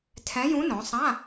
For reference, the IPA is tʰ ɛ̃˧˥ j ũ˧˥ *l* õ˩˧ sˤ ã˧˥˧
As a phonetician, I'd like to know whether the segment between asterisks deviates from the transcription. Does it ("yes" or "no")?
yes